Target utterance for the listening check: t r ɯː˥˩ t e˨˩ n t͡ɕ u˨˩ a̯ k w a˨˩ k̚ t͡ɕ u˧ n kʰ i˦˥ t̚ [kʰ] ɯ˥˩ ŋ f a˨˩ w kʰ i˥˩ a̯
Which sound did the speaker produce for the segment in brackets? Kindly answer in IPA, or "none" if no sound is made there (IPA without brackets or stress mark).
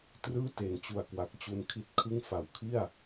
kʰ